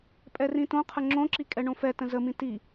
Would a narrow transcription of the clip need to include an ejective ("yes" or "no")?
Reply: yes